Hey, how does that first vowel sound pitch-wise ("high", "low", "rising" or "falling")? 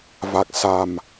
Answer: low